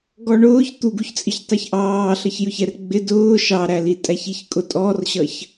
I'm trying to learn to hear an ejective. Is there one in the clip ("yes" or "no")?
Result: yes